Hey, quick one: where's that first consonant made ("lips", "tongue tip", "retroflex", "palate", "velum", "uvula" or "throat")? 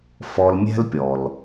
lips